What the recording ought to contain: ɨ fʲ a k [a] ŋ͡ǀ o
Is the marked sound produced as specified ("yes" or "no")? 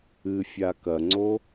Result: no